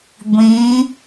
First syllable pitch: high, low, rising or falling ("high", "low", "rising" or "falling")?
rising